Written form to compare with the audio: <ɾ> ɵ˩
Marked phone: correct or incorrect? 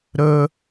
correct